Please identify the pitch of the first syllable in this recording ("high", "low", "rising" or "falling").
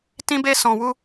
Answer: high